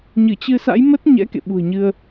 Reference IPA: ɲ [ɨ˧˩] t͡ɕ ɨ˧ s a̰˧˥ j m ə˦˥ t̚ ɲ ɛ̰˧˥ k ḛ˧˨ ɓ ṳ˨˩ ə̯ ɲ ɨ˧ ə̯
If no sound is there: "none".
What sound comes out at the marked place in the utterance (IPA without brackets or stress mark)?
ɨ˧˩